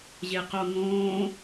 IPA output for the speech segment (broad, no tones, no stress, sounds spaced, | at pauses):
ʑ e q o ŋ õː